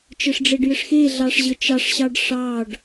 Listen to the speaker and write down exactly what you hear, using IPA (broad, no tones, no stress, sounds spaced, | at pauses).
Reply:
t͡ʃ ɘ ʂ ɖ͡ʐ e ɖ j ɘ ʂ x e ɮ ɑ ʂ ʑ ə t͡ʃ ɑ ʂ ɕ ɑ ɖ ʂ ɑ ɖ